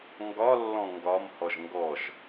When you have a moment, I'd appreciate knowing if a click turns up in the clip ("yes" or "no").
no